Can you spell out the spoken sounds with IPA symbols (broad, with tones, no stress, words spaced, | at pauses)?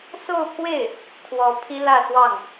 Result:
so˥˧ʊ̯pʰwe˥˩ɪ̯ | kʰwɔ˧˥pʰi˥ lä˥˧swɑ˥˩ŋ